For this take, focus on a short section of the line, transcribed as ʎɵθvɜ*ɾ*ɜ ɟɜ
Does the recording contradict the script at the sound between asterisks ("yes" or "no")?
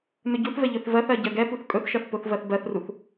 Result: yes